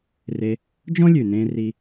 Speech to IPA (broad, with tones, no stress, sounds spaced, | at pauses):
r e˧ | d͡ʒ ɔ̃˥ lʲ ʉ˩ n ẽː˧ r i˧